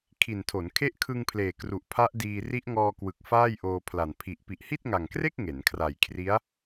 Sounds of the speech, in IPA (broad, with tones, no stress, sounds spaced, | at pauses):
kʰ i˨˩ n tʰ o˩˦ n kʰ e˦˥ ʔ kʰ ɯ˧ ŋ pʰ l eː˨˩ k r u˨˩ ʔ pʰ a˦˥ ʔ d iː˧ r i˦˥ ʔ ŋ ɔː˧ k w ɯ˨˩ k̚ f aː˥˩ j ʔ oː˧ pʰ l a˨˩ n pʰ i˨˩ ʔ p i˨˩ ʔ h i˥˩ t̚ ŋ a˨˩ ŋ k r e˥˩ k̚ ŋ e˩˦ n kʰ r a˨˩ j kʰ r i˦˥ a̯